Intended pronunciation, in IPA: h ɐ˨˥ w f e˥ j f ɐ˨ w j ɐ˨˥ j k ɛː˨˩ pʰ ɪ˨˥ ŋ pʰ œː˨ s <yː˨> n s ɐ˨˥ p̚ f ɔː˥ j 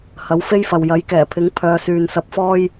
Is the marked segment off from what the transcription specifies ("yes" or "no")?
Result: no